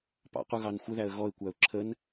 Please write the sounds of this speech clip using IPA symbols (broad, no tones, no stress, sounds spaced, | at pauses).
p ɑ̰ q u ɣ ɑ n xʷ ə ð æ ə̯ ɣ ɔ ɪ̯ kʷ æ ʊ̯ ǁʰ ə n